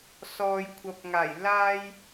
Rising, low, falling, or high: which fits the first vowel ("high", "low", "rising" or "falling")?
low